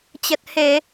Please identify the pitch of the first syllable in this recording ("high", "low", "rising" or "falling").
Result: low